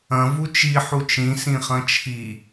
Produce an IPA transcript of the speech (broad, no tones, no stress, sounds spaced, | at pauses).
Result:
ɐ̃ v u t͡ʃ i ħ u t͡ʃ ĩ s ĩ χ ɐ̃ t͡ʃʰ i